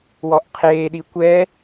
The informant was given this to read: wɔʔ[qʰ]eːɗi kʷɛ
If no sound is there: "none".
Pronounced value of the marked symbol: qʰ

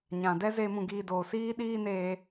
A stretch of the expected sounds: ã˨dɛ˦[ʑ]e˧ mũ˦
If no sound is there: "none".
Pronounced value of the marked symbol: z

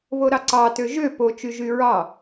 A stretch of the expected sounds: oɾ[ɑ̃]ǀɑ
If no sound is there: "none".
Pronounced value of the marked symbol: ɑ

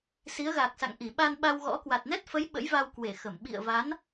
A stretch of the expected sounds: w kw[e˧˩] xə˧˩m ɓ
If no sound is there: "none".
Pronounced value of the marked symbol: e˧˩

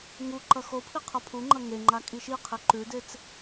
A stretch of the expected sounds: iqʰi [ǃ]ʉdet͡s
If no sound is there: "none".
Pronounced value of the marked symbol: ǃ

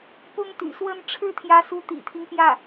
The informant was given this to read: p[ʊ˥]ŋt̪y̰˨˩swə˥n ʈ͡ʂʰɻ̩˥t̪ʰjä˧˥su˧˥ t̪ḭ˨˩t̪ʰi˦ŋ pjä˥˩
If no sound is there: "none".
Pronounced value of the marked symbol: ʊ˥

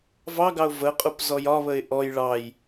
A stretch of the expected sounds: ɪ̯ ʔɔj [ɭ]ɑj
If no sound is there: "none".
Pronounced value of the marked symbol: ɭ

